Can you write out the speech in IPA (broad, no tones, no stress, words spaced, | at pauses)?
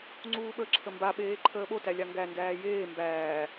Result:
ŋ͡ǀuːɓə ǁʰəmba ɓeːǃʰəːɓo tælʲaŋɡæ ndæːjeː mbæː